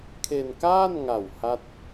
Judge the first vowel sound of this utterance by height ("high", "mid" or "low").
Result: mid